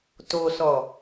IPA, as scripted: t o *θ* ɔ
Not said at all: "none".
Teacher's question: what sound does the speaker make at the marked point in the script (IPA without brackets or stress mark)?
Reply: s